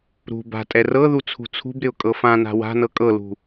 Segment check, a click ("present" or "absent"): absent